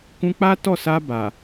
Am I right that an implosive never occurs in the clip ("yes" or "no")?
yes